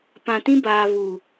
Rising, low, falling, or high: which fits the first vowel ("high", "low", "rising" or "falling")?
low